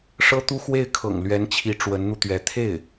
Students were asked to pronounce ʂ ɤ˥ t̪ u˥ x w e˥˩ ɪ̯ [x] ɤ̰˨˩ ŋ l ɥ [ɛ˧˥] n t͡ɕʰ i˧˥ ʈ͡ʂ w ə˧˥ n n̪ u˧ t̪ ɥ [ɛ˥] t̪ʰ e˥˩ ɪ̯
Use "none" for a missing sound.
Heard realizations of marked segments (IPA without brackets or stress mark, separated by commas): kʰ, ɛ˧˥, ɛ˧˥